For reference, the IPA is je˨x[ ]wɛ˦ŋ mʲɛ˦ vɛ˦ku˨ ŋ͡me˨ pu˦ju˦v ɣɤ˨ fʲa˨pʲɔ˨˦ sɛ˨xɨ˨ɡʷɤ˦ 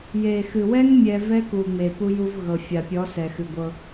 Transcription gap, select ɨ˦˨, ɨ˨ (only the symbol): ɨ˨